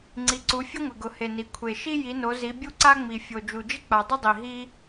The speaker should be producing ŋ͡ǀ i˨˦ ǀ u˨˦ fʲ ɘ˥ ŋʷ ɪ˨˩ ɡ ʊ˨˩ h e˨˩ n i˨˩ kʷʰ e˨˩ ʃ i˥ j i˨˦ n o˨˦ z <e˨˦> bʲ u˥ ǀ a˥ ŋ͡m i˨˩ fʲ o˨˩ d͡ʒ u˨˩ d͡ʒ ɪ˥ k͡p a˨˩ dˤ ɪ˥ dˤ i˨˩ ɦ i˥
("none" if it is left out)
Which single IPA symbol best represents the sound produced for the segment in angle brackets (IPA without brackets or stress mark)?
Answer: i˨˦